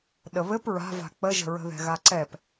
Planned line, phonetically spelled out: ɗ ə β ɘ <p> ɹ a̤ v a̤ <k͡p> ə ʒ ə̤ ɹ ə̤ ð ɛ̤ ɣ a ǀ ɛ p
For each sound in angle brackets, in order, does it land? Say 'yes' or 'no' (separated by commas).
yes, yes